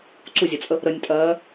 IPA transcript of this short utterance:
ǀuzʲət͡sʼə | ɾənʲtʼɜː

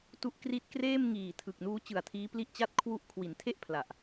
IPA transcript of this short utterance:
tu˦˥ʔkri˦˥t̚ kreː˥˩mŋiː˨˩ tʰɯ˨˩k̚nuː˦˥t͡ɕɯ˨˩a̯tʰiː˦˥ pli˥˩ʔt͡ɕa˥˩t̚kʰwu˥˩ʔ kʰwi˩˦ntʰe˥˩ʔ pʰla˨˩ʔ

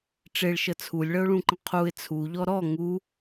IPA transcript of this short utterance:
ʈ͡ʂeɭʃə t͡sʰulʲɭəʊ̯ɭũǃə̃ qʰuɪ̯ t͡sʰuʎɔ ɾɔ ŋu

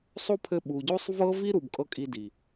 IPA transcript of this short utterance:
sˤo˦pʰɘ˧ɓu˨ɟo˦sˤ vɤ˦vi˦ ɾu˨bkʼɤ˧ kʼi˧di˨

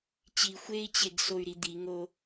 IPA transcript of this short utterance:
t͡ɕi xʷei̯t͡ɕeɡsoy̯ɾi d̪iŋo

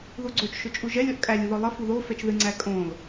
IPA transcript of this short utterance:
ðuɡ͡ǀot͡ʃ ʃʊt͡ʃʼuʒɛlʲ ɔʔkʼælʲ uðɔlˠə fuðo fɛt͡ʃðɨ ŋ͡ǀækʼõl

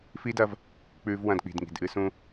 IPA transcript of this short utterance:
fi˦dɐ˧v | k͡pʉ˧v wɐ̃˧dk͡pi̤˨dŋi̤˨d ʔɨ˧sũ˧

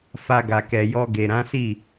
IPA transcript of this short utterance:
fa˧ɡa˨kɛ˨jɔ˧ ɡe˨ɾã˨˦si˦˨

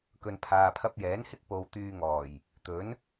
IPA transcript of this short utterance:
kɵ˨npʰaː˨ pʰɐ˧p̚jɛː˨˥nhɪ˥k̚ po˧w t̪yː˧ŋɔː˨˩j | t̪ɵ˨˥n

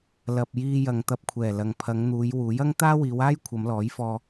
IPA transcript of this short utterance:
lɐ˨p̚ jiː˧ jɐ˨ŋt̪ɐ˧p̚kʷʰɛː˨˩ lɐ˨ŋpʰɐ˨˧ŋn̪uː˨˧j wuː˨˥j ɐ˥ŋ t̪aː˥wiː˨˧waː˥j kʷʰɐ˨˧mlɔː˨˥jfɔː˧

